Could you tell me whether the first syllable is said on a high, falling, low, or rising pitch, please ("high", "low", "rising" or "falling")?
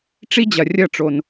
high